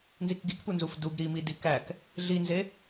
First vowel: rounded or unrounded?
unrounded